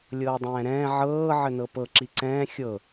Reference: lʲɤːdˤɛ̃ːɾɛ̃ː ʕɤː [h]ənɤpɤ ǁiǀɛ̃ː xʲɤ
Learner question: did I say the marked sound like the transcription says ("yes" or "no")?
no